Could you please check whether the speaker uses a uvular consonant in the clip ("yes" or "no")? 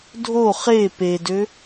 yes